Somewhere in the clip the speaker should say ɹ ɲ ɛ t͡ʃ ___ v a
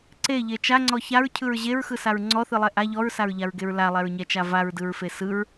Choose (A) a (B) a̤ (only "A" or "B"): A